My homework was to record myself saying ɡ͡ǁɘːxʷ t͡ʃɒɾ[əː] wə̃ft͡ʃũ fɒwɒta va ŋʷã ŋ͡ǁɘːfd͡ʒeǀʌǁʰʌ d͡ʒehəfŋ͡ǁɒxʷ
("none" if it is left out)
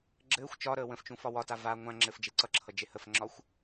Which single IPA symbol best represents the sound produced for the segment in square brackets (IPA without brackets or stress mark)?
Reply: əː